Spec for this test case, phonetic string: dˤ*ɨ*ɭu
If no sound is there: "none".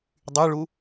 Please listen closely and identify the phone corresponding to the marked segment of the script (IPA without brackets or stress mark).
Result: y